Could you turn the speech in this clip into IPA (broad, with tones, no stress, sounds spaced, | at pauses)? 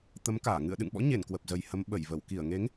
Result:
t̪ ə˨˦ m k aː˧˩ ŋ ɨ̰˧˨ ə̯ ɗ ɨ̰˧˨ ŋ ɓ ɔ̰˧˥ ɲ e˧˩ n k w ə˨˩ p̚ z ə˨˩ j h ə˨˦ m ɓ ə˧˩ j v ə˧˩ w k i˧˩ ə̯ ŋ e˨˦ ŋ